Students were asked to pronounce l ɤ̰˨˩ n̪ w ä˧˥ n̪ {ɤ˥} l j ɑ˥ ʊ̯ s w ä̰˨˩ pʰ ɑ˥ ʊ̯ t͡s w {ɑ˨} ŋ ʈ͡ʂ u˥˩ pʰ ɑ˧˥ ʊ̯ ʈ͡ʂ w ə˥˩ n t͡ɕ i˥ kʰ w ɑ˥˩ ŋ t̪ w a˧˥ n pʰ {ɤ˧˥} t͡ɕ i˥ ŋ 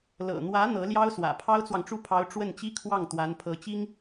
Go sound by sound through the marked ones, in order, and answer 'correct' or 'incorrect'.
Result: incorrect: ɤ˧˥, correct, correct

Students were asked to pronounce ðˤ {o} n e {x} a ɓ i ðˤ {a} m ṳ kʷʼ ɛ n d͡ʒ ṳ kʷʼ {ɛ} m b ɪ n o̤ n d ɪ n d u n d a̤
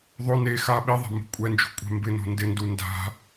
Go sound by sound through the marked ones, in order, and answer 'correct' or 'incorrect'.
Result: correct, correct, incorrect: a̤, incorrect: ɛ̤

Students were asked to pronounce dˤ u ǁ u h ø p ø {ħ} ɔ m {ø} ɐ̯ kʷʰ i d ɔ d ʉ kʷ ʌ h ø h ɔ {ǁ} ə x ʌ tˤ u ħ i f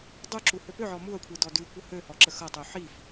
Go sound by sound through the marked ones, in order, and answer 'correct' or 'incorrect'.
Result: incorrect: ʕ, incorrect: u, correct

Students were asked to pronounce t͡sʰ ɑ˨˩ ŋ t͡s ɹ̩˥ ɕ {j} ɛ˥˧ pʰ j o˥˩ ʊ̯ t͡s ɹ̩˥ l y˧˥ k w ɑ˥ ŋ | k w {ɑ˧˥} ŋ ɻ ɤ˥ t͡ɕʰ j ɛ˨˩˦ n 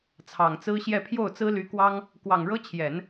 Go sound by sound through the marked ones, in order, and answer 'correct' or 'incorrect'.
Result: correct, incorrect: ɑ˨˩

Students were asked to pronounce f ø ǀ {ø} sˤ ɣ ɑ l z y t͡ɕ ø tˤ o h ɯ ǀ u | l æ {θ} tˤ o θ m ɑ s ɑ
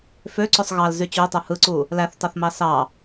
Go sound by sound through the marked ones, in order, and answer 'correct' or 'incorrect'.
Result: correct, correct

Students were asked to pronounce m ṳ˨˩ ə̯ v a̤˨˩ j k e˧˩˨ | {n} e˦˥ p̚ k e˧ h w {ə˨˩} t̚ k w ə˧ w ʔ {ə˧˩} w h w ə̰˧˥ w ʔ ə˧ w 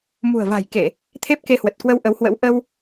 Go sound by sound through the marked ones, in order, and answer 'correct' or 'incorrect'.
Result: incorrect: t̪ʰ, correct, incorrect: ə˨˦

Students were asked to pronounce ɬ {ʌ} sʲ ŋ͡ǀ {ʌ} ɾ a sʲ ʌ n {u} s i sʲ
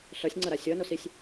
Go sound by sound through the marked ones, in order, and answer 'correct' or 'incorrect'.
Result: correct, correct, incorrect: o

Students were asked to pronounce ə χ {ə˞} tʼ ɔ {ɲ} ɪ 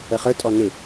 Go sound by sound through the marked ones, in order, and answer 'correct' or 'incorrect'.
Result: correct, incorrect: n

